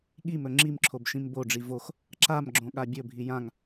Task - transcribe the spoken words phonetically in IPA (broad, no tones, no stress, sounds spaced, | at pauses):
ɠ i m ɵ ŋ͡ǁ i m ǁʰ o b ʃ ĩ m b o ɖ͡ʐ i v o x | ǁ a m ɡ͡ǁ õ ɠ a bʲ ɵ bʱ i j ã ŋ